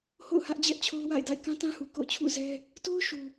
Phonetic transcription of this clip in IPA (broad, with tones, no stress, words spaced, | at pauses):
ho̰˦˨ʊ̯hä˦ʔ d͡ʑɛ˦ʔt͡ɕʰo˦ʊ̯wa̰˦˨ɪ̯ da̰˦˨ɪ̯kã˦tã˦hu˨ ko̰˦˨ʊ̯t͡ɕʰṵ˦˨zɛ˦ | to˦ʊ̯ʃu˨